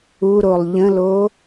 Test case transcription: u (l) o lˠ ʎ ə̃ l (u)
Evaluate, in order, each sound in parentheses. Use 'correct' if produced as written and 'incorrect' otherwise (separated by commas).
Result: incorrect, incorrect